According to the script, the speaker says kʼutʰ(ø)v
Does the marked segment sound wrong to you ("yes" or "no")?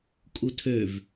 no